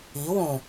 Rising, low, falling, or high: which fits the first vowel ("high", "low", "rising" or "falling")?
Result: rising